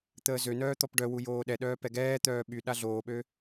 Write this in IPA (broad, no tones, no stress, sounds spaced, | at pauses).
t̪ əː z ø n œː t̪ ɔ p ɖ œ w u j oː ɗ ɛ ɗ œː p ɛ ɡ ɛː t̪ œː ɓ y ɗ a ɮ oː ɓ ø